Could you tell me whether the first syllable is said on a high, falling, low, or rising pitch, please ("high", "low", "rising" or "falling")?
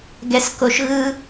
high